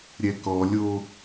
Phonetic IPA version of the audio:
ɾʲ ɛ k ɔ lʲ o

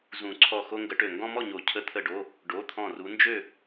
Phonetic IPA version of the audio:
z ũ˨˩˦ ǀʰ ɔ˧˩ x o˦ ŋ ɡ ə˨˦ ʈ ø˧˩ ŋ ɡ ɔ̃˦ m ɔ˥˨ ɲ o˨˩˦ cʰ ə˧˩ t̪ʰ ə˧˩ ɖ o˩˧˩ | ɖ o˩˧˩ t̪ʰ ɔ̃˧˩ r u˨˦ n d͡ʒ ø˥˨

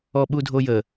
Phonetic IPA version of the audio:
ɔ ɓ u dʱ o j ə

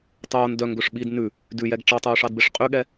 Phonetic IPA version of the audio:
tˤ oː n d œ ŋ ɡ ɵ ʂ ɓ i d n ʉ | d ʉ j ɛ ɡ ʈ͡ʂ ɑ tˤ oː ʂ ɑ d b e ʂ qʼ y ɠ ɛ

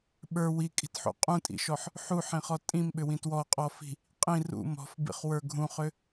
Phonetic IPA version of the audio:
ɓ ə˞ w i kʼ i̤ t ħ ṵ qʼ ũ tʼ ḭ ʃ ɔ ħ | ħ u ħ ĩ χ ɔ tʼ ĩ m ɓ ʏ w ĩ t w ɔ qʼ ɔ f i̤ | qʼ ĩ r ṵ m ɔ̤ f b ḭ χ w ə˞ ɡʱ ũ χ ʏ

